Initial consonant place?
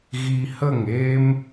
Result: velar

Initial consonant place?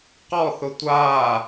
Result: uvular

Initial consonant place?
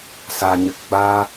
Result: alveolar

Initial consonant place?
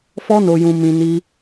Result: labial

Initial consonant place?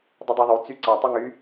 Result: alveolar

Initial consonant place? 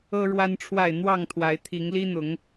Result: retroflex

